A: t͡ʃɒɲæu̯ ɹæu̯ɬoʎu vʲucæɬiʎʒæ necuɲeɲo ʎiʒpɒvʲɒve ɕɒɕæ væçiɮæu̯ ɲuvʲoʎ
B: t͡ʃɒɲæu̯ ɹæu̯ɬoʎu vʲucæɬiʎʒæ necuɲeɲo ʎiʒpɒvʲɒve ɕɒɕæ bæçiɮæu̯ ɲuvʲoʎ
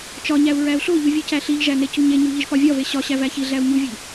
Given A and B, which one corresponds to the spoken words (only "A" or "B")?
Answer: A